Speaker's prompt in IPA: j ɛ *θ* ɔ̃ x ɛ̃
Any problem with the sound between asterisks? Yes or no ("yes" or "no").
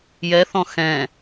no